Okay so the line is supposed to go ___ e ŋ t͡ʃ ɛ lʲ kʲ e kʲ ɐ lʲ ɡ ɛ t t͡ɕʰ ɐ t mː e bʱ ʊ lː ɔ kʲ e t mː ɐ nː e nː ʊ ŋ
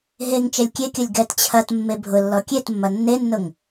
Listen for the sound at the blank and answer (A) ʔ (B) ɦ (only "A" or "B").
B